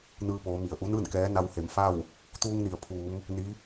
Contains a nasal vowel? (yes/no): no